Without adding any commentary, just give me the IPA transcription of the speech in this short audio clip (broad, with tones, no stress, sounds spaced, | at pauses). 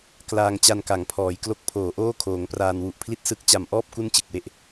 k l aː˧ ŋ t͡ɕ a˧ n k a˩˦ ŋ pʰ ɔː˩˦ j k l o˦˥ k̚ pʰ oː˩˦ ʔ oː˥˩ kʰ oː˩˦ ŋ p r aː˧ n w u˨˩ ʔ pʰ l i˥˩ t̚ s ɯ˦˥ k̚ t͡ɕ a˨˩ m ʔ ɔː˥˩ p̚ k u˥˩ n t͡ɕ ɯ˨˩ k̚ w e˦˥ ʔ